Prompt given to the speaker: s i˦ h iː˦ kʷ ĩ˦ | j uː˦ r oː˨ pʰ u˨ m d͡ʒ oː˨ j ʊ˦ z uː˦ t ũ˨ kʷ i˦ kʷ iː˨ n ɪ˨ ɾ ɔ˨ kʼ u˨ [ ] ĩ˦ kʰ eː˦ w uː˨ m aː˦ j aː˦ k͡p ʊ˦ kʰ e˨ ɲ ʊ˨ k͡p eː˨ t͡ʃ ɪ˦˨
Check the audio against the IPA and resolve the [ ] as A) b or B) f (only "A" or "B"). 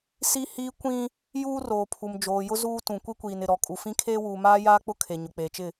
B